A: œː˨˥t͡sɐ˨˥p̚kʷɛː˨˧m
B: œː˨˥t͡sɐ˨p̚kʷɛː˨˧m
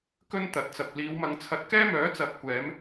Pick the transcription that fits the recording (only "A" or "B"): A